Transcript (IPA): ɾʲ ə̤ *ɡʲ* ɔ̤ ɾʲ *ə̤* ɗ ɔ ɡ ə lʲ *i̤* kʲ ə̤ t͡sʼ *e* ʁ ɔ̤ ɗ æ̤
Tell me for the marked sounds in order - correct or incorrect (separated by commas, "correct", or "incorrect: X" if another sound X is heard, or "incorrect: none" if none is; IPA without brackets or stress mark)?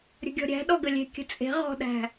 correct, incorrect: æ̤, incorrect: e̤, incorrect: e̤